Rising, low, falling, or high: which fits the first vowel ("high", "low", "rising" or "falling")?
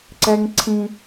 high